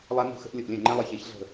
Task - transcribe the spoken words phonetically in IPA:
lˠ a˦ n ṳ˦ x ə̤˦ ʔ lʲ ə˦˨ ʔ lʲ ɛ̃˦˨ ŋ͡ǃ ɛ̃˦ lˠ ɛ˦˨ ç e˦ ç ɮ ə̤˦˨

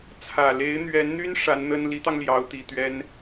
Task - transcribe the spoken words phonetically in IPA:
t͡sʰ ä˨˩ l e˧˥ ɪ̯ n̪ ɥ ɛ˧˥ n n̪ y˥ n ʂ a˧˥ n n̪ ə˥ n l i˧˥ t̪ ɑ˧ ŋ l j ɑ˧˥ ʊ̯ t̪ i˨˩ t̪ ɥ ɛ˥ n

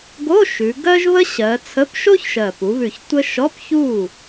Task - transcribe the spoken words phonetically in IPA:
ɡ o˧˥˧ ʃ ʉ˩˧ ɡ ɜ˥ ʒ β ə˥ ɕ ɜ˩˧ t͡sʰ ə˧˥˧ p ʃ o˥ ç ʃ ɜ˨˩ p u˩˧ β ʉ˨˩ ç tʷ ə˥ ʃ ɔ˧˥˧ p ç u˥˩

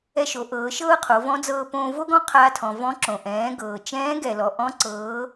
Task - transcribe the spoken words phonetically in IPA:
ɛ˧ ʃ o˩˧ ʔ ɤː˩˧ ʃ ɤː˥ qʰ o˩˧ v ɔ̃˧˥ d͡z ɤː˧ p õː˧ v o˥ ɡ ɔ̃˥ qʰ aː˧ tʰ ɔ̃˩ v ɔ̃˧˥ ǁ õ˩ ʔ ɛ̃ː˩˧ ɡ ɤː˩ t͡ʃ ɛ̃ː˧˥ ɡ ɛ˩ l ɔ˩ ʔ ɔ̃˧˥ ǀ ɤː˩˧

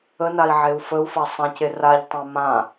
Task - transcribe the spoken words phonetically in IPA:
ə n a i̯ ʕ e u̯ f ə u̯ f a sˤ ã c e r a ʎ tˤ ã m ã

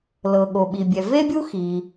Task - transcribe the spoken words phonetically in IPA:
l ɤ˩ ɠ o˩ ɓ i˩ bʲ ɛ˩ v e˥ bʲ u˥ x i˩

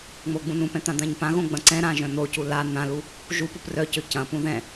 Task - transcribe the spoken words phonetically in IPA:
ŋ͡m o ɡ͡b ũ n ũ p ɛ̃ t̪ ã d̪ ã ɲ p ã ɣ õ ɡ͡b ɐ̃ ǀ ɛ̃ ɾ ã ʒ œ̃ n̪ o c u l a n̪ ã l u | ʒ u p u p r œ c ø c ɐ̃ p ũ ð ɛ̃

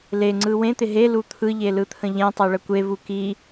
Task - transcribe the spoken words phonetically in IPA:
l e ŋ͡ǀ ɯ w ẽ t̪ ɪ ɦ e l u t̪ʰ ɯ ʎ e l ɯ t̪ʰ ə̃ ʎ ẽ tˤ e ɭ ə kʷ e v u k i

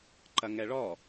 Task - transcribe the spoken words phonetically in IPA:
ǃ ɐ ŋ ɛ ɭ ɔ

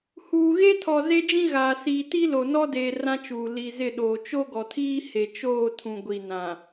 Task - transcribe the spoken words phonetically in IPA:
h uː˨ ɣ e˦ tʰ ɔ˨ z e˦ d͡ʒ ĩ˦ ɣ aː˨ s iː˨ t i˦ l o˨ n ɔ˦ d eː˨ r ã˦ t͡ʃ uː˨ l i˨ z ɪ˦˨ ɗ oː˨ t͡ʃ o˦ ɡ ɔ˨ tʰ iː˦ h e˨ t͡ʃ oː˦˨ tʰ ũ˨ ɡʷ i˨ n ã˨

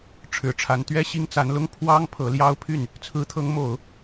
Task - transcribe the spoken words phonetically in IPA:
ʈ͡ʂʰ ɻ̩˨˩ ʈ͡ʂʰ a˧˥ n t̪ ɥ ɛ˥ ɕ i˥ ŋ t͡s a˧˥ n l ʊ˥ ŋ pʰ w ɑ˥ ŋ pʰ ɤ˧˥ l j ɑ˥ ʊ̯ pʰ y˥˩ n | t͡sʰ ɹ̩˧˥ t̪ʰ ɤ˧˥ ŋ m o˨˩˦ ʊ̯

